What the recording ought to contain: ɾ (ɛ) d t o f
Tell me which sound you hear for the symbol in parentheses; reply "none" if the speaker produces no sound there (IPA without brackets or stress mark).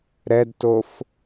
ɛ